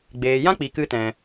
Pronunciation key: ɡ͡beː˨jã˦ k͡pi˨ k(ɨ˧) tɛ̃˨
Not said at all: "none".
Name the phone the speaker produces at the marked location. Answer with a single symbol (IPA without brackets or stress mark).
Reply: ɨ˧